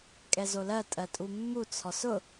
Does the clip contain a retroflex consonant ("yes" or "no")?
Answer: no